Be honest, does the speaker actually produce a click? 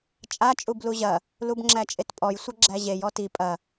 yes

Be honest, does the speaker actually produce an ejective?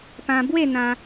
no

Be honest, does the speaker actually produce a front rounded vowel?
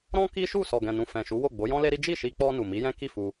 no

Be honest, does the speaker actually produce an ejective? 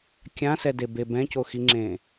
no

